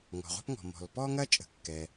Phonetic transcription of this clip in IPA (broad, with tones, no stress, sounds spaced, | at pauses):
ŋ ɔ̤˩ ʁʷ a̤˥ p ŋ ɔ̤˩ m ɔ̤˩ l p ɔ˥ ŋ ɐ˥ t͡ʃʼ ə̤˩ kː ɛ˩